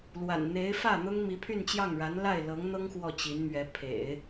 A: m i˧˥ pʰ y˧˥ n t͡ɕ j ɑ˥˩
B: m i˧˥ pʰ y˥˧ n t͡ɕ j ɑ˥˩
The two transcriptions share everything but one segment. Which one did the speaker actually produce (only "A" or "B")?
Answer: B